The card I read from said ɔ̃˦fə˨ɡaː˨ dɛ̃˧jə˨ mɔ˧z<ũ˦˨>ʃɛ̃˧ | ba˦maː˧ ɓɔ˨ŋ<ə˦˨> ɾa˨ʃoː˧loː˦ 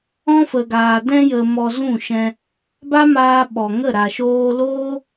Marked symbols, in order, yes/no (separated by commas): yes, yes